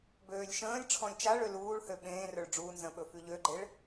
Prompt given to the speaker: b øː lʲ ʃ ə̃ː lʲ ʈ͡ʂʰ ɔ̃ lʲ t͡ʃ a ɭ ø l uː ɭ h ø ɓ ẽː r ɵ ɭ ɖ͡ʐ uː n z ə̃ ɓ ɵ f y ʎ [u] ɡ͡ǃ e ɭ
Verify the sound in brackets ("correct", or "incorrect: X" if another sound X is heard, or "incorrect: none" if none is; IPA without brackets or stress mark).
incorrect: ø